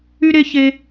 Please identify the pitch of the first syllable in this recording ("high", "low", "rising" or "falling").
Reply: high